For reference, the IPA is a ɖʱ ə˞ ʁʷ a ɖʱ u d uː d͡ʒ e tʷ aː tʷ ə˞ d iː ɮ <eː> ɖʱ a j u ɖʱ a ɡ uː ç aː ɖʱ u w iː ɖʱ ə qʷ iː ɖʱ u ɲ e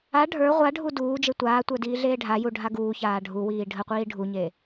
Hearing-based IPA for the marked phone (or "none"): eː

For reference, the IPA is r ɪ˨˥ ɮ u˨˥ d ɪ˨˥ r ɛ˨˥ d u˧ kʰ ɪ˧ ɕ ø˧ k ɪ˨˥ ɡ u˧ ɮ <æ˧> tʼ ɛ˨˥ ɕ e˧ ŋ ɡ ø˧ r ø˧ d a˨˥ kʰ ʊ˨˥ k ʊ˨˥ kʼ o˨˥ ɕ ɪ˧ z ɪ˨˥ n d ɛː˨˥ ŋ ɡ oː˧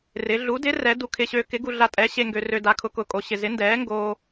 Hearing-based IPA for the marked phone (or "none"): a˧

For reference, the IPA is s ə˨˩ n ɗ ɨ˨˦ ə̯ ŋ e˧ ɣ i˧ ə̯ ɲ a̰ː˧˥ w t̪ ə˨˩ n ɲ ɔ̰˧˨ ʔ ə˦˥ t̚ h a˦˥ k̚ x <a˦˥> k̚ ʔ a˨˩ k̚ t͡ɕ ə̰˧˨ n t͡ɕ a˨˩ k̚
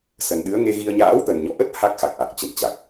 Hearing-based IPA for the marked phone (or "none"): a˨˩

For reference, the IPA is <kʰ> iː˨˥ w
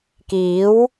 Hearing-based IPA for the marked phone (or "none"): k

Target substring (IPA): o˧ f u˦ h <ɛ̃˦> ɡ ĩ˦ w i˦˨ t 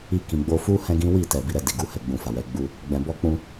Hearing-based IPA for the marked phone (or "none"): ɛ̃˦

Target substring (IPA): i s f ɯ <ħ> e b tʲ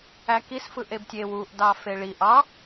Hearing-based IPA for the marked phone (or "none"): ʔ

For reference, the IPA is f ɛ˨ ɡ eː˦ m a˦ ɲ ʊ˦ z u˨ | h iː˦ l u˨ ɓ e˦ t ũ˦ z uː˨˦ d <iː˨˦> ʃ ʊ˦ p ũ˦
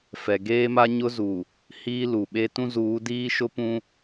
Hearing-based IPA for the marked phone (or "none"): iː˦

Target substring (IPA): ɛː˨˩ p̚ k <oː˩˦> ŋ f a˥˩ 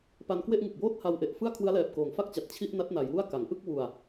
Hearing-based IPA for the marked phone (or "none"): oː˩˦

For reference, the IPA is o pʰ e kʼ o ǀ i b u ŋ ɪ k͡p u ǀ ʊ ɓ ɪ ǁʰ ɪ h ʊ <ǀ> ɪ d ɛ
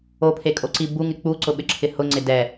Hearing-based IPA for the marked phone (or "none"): ŋ͡ǀ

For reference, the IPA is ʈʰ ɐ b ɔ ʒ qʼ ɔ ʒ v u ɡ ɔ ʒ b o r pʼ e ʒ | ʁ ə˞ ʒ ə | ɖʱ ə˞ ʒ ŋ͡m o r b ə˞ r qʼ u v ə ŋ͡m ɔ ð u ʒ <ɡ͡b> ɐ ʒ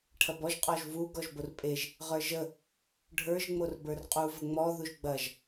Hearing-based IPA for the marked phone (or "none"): ɡ͡b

